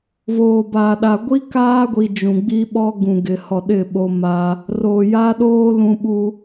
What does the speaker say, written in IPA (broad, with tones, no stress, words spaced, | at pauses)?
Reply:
voː˨baː˨ɗa˨ ɡʷi˦kaː˦ɡʷi˨ d͡ʒũ˨ɡ͡bi˦ɓɔ˦ ɡũ˨ɡɪ˨ hɔ˨ɗɪ˦˨ ɓo˦ma˦ | roː˨jaː˦ɗoː˦ lũ˦ɓu˦